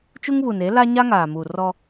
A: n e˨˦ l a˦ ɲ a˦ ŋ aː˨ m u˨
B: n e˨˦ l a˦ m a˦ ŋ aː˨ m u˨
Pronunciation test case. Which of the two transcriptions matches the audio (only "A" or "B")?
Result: A